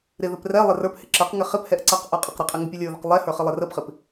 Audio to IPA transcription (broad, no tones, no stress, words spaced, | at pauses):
ɾɪðɘp rɛ lˠɪrə˞phɪ ǁɘqŋɪ χɪphɛʔ ǀɐqʔə˞ qʼɘqɾɘqʼɘ ŋɘpʲɘlʲə˞ðəq lˠɛhə˞ χɪlˠɪrəpχɪp